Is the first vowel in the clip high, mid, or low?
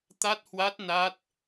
low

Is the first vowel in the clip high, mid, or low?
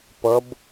mid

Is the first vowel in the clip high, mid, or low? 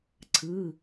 high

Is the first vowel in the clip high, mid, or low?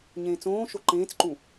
mid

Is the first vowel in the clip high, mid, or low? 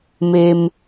mid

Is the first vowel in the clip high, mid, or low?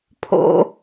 mid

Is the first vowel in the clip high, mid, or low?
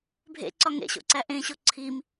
mid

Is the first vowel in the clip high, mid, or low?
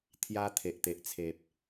low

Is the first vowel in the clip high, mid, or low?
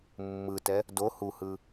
high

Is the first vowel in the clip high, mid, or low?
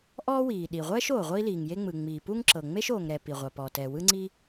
mid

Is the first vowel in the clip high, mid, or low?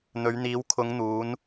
mid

